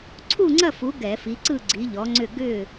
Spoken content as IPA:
ǀʰ u˥˨ ŋ͡ǀ ɐ˥˨ f u˨˦ ɡ ɛ˧˩˧ f i˨˦ ǀ ɯ˥˨ ɡ͡ǀ i˨˦ ʎ ɔ˨˦ ŋ͡ǀ ʏ˥˨ ɡ ʏ˥˨

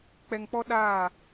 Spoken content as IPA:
k͡p ɛ˨ ŋ k͡p ɔ˦ ɗ aː˦˨

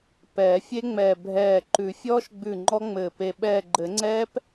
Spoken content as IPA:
p ɛː˨˩˦ fʲ e˦˥ ŋ͡m ɛː˧˩ bʱ ɛː˧˩ ǃ ʉ˨˩˦ fʲ ɔː˦˥ ʃ ɡ͡b ʉ˧˩ ŋ͡ǃ ɔ˦˥ ŋ͡m ɘː˧˩ p e˧˩ ɓ ɛː˧˩ ɡ͡ǃ ɘ˨˩˦ ŋ͡ǀ ɛː˦˥ p

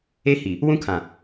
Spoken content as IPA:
e˦ h i˨ | w ũ˦ kʰ ã˨

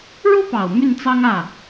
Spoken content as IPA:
ɻ u˥ p ɑ˨˩ ʊ̯ m y˥˩ n t͡s ɑ˥ ŋ ä˥˩

